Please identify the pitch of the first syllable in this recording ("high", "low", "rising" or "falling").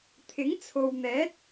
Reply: rising